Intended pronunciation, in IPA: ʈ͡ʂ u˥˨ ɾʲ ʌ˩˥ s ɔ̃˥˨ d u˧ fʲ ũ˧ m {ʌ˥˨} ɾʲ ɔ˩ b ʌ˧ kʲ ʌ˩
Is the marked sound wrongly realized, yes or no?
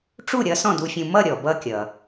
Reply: no